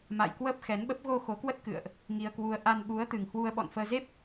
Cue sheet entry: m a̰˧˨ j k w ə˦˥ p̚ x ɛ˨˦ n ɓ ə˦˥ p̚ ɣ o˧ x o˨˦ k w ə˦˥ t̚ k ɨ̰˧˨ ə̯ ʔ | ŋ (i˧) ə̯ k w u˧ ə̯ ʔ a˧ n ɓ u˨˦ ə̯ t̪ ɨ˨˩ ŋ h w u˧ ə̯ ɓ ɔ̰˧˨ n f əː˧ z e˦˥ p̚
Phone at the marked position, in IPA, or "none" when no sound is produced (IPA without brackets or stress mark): i˧